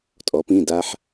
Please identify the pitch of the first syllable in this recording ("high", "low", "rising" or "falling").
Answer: rising